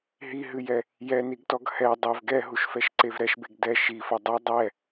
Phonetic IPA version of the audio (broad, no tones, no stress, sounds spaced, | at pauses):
ɦ i ɦ ɨ j ɛ | j ɛ n i ɡ t ɔ ɡ h ɛ dˤ ɛ v ɡ ɛ ɦ u ʃ f ɛ ʃ ǀ e v ɾ ɛ ʃ b e ɡ d ɛ ʃ i f ɐ dˤ e dˤ ɛ